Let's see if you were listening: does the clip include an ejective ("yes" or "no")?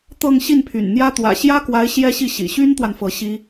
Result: no